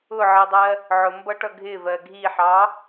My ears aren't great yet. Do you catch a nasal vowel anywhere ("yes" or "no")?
no